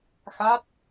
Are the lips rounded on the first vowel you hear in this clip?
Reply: no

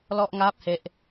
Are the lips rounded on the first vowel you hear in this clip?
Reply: yes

